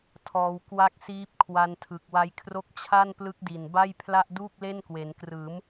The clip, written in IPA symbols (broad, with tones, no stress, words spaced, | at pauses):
tʰɔː˦˥w kwa˦˥k̚siː˦˥p̚ kʰwa˧ntʰɯ˨˩k̚wa˦˥jkʰro˥˩k̚ t͡ɕʰa˥˩nplɯ˦˥k̚di˨˩nba˥˩j pʰla˥˩ʔduː˥˩k̚ le˥˩nkwe˩˦nkrɯː˩˦m